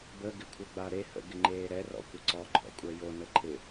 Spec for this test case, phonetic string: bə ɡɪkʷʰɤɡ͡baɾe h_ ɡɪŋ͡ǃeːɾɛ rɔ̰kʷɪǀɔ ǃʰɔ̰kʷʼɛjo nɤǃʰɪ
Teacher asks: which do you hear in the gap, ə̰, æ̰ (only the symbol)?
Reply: ə̰